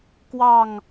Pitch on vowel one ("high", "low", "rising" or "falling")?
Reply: falling